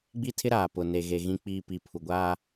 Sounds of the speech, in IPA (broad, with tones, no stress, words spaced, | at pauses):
ɡ͡bi˦tʰɪ˦ɾaː˨ pʊ˨ne˨ɣe˨ ɣĩ˨k͡piː˨ pi˨pʰu˨ɡʷaː˦